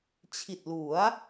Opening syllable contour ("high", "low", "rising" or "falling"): low